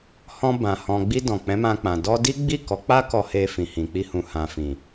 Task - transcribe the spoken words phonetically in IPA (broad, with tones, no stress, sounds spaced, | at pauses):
h ɔ̃˧ b ã˨ h ɔ̃˨ ɡ͡b i˧ d ɔ̃˨ k͡p ɛ̃˨˦ m ã˧ k͡p ã˨ d ɔ˧ d i˦ ɡ͡b i˦˨ k ɔ˨˦ k͡p a˦ k ɔ˧ h e˧ f ĩ˨ h ĩ˨ k͡p i˧ h ũ˨ h ã˨ f ĩ˨